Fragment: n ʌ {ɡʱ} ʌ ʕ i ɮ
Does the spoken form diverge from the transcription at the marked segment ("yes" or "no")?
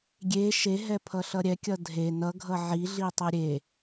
no